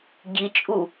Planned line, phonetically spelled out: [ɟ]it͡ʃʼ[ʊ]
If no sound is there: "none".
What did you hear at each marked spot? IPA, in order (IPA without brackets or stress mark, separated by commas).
ɟ, u